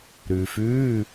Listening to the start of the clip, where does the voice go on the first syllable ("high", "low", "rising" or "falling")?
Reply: low